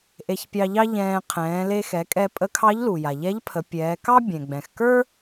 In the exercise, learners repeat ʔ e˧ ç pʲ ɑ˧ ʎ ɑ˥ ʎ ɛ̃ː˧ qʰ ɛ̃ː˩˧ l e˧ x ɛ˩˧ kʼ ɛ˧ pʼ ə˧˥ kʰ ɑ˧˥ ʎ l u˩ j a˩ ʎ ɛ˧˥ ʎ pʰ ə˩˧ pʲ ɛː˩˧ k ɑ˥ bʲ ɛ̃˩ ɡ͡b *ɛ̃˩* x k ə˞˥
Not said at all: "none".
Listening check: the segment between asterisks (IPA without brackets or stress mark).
ɛ̃˩